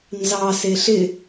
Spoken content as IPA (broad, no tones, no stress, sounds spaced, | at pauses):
n z ɑ s e ɬ ɪ